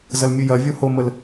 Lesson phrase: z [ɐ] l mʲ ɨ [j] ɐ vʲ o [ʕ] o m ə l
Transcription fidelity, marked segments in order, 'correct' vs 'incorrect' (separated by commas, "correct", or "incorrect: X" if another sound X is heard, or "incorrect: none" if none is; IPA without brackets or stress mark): correct, correct, incorrect: h